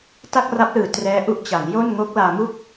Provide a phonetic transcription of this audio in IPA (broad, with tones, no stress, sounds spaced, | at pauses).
t a˥˩ k̚ r a˦˥ p̚ l ɯː˨˩ t r ɛː˦˥ ʔ u˦˥ ʔ t͡ɕ a˩˦ ŋ j o˥˩ n ŋ o˦˥ k̚ l aː˧ m u˥˩ k̚